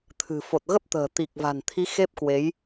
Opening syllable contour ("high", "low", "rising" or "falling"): low